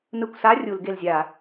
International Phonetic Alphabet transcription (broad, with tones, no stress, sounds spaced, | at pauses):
n ɯ˧˩ kʷ s a˧˥˧ rʲ u˧˩˧ l ɡ e˧˩ l zʲ a˧˩˧